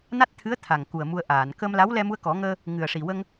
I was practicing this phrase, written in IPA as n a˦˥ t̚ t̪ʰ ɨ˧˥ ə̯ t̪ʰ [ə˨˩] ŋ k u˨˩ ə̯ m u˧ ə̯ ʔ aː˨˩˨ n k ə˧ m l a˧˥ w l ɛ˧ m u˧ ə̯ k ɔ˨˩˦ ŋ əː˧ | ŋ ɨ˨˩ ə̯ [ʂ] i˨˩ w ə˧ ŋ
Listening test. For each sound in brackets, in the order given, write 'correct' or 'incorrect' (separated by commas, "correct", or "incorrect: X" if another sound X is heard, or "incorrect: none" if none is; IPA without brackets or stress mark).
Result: incorrect: a˨˩, correct